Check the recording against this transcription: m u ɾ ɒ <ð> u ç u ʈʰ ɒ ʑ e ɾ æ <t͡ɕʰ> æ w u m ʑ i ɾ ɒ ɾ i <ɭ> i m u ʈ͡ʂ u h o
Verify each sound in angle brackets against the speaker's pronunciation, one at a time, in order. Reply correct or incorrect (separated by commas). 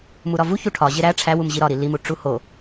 incorrect, incorrect, incorrect